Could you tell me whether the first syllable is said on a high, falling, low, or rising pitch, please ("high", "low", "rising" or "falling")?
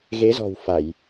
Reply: rising